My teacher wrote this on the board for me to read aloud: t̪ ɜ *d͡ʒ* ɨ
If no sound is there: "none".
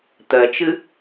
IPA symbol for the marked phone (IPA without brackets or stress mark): t͡ʃ